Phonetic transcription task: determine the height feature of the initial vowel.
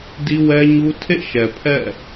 high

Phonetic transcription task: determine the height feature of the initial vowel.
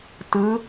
high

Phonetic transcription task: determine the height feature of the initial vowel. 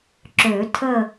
mid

